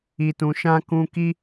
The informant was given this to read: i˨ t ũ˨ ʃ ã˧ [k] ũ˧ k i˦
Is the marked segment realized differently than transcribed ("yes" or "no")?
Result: no